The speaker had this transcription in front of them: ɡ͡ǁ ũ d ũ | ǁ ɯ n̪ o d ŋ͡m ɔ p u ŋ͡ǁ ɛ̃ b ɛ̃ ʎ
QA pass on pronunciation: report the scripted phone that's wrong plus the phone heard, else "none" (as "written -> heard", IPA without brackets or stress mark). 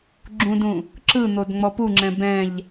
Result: none